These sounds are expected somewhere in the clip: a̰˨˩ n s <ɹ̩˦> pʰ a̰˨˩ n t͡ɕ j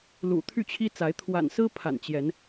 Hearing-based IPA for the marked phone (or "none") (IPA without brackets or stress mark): ɹ̩˦